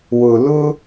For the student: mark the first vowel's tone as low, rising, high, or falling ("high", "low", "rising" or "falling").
low